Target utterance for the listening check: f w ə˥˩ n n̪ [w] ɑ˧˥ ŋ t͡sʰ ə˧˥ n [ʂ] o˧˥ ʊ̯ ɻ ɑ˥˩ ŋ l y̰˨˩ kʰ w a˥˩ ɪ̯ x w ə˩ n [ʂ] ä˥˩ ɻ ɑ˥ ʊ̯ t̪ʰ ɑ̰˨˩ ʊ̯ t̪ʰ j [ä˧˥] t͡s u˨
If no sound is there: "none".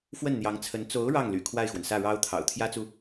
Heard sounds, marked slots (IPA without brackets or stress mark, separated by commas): j, t͡s, s, ä˥